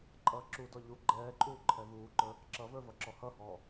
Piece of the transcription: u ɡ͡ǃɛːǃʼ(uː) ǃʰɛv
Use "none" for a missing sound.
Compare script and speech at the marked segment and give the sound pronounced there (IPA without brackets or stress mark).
uː